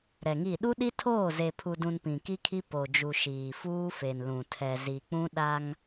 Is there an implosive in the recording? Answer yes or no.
yes